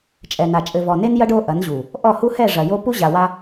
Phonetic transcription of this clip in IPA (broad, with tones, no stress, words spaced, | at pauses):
t͡ʃʼɛ˨na˨ t͡ʃʼɘ˨vɔ˨ne˦njɐ˦ɖ o˦ʔɐ˨˦nʑu˨ | ʔɔ˦˨hu˦hɛ˦˨ ʐɐ˨jo˦ pu˦ʑa˨wa˦